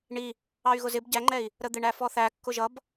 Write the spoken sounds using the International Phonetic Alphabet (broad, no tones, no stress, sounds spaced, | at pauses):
ɳ i | ɑ y̯ ɣ ʊ z ɪ b ɟ æ ŋ͡ǃ ɛ i̯ | ɾ ə d̪ ɪ ɳ æ f ɔ θ æ kː ʊ ʒ ʌ b